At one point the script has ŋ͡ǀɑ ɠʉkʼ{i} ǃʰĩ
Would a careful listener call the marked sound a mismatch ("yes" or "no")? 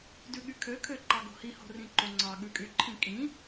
yes